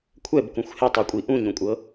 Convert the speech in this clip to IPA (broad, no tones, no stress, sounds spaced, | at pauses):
kʷʰ ɛ b k ũ xʷ h e tˤ u kʷʼ i ʔ ũ ɲ ũ kʷʼ ɤ